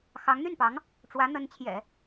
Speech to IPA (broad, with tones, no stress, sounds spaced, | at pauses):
x ɑ˧˥ ŋ n̪ y˥˩ n p ɑ˧˥ ŋ | ʈ͡ʂ w ä˧˥ n̪ ə˧˥ n t͡ɕʰ j ɛ̰˨˩˦